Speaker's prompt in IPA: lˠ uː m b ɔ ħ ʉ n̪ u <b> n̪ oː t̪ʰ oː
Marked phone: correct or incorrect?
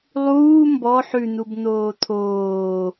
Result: correct